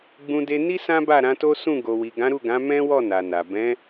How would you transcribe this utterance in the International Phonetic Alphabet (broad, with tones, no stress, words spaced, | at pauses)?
ɡ͡bũ˧de˧ni˦ sã˦ba˦˨ɾã˨˦to˦ sũ˦˨ɡo˨wi˨ ɡã˨˦ɾu˦˨ɡã˨˦ mɛ̃˦wɔ˦˨ na˨na˨ bɛ̃˨˦